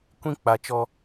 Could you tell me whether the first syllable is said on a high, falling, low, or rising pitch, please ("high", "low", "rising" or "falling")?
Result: high